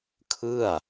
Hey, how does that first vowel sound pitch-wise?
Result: falling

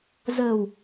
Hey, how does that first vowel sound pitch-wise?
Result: low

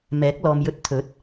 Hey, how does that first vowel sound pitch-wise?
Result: rising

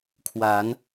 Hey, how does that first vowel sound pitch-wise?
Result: rising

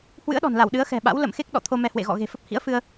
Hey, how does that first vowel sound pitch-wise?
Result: rising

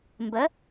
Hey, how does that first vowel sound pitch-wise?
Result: rising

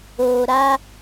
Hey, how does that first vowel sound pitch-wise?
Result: low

